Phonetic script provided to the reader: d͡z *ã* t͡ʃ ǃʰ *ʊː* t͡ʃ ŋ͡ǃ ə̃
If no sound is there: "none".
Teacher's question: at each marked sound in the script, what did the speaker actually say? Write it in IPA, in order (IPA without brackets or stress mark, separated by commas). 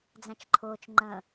æ̃, ʊː